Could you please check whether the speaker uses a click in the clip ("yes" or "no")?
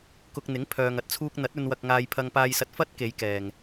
no